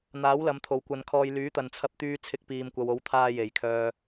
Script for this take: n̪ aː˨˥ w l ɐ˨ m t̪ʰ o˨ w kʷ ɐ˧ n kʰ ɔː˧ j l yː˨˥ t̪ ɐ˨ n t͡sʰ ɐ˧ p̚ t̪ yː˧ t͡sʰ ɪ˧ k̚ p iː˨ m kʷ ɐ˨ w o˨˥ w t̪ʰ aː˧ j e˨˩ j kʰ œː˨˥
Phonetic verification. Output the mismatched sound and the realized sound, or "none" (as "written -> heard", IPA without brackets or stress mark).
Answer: œː˨˥ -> œː˨